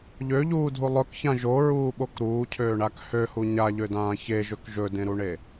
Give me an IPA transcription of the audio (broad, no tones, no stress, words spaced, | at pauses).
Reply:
ʎøʎuːdʱu lˠɵkçãʒ oɹuːɓok ɾuːcʰøːɳak høhu ɲaʎødãː çeʒɵk ʒɵdẽɾuɳe